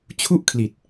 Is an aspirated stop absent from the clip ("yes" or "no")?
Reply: no